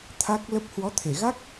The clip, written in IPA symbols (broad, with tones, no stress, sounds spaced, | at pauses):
t̪ʰ a˦˥ k̚ l ə˦˥ p̚ h w ɔ˨˦ t̪ʰ e˧˩ ɣ a˦˥ k̚